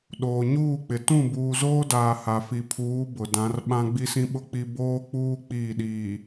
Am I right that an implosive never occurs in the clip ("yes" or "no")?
no